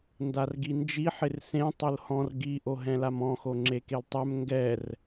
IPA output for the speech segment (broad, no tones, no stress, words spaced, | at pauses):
ndarɡind͡ʒi ħɪrsẽ tˤʊlhɔ̃r ɡi ʔoɦɛ̃lamɔ̃ xoŋ͡ǁekeltˤɛm ŋɡɛr